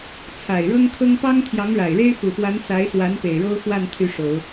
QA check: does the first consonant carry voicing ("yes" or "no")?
no